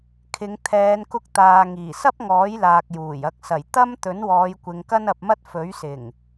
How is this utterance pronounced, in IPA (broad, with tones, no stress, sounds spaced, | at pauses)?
kʰ ɪ˨˧ ŋ t̪ʰ ɛː˨˧ n k ʊ˧ k̚ t̪ aː˨ ŋ iː˨˩ s ɐ˥ p̚ ŋ ɔː˨˥ j l aː˨ k̚ j uː˨˩ j ɐ˨ k̚ s ɐ˨˩ j t̪ ɐ˥ m t̪ ɵ˨˥ n w ɔː˨˧ j kʷ ɪ˨ ŋ k ɐ˥ n ɐ˧ p̚ m ɐ˥ t̚ f ɵ˨˥ ɥ s ɪ˨˩ ŋ